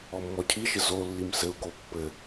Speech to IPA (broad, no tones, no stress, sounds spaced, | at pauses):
ɔ mː ɔ cʰ i ʃ ɘ z o lː i m s ɘ u̯ k o pː ɘ